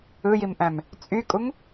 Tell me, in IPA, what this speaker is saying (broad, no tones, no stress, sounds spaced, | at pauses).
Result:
ɯ j i m ʔ æ̃ m | t͡sʼ y kʼ u ŋ